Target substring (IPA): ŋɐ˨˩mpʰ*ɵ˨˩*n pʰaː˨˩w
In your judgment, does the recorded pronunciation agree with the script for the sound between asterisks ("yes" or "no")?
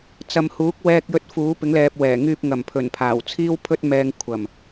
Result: yes